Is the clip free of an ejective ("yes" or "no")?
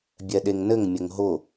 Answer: yes